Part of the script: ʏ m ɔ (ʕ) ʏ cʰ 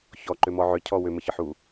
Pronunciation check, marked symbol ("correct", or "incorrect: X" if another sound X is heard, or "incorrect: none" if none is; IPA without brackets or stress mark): correct